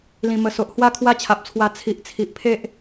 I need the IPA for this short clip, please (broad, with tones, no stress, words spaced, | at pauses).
lĩ˨˩mə˨˩so˨ʔ hwa˦kʰwa˦t͡ɕʰa˨p̚t͡sʰwa˧ t͡sʰi˨ʔt͡sʰi˨ʔpʰe˦ʔ